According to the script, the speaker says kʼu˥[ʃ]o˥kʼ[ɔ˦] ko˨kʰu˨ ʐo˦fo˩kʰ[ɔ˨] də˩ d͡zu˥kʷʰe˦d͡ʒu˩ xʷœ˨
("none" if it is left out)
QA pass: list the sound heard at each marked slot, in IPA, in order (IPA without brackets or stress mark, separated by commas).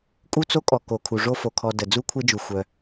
t͡s, ɔ˨, ɔ˨